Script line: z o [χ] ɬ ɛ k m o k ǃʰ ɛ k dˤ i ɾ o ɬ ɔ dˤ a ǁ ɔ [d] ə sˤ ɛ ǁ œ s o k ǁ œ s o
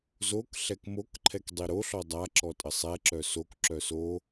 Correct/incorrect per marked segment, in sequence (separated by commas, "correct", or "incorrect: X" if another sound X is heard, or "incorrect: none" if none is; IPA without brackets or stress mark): incorrect: k, incorrect: tʼ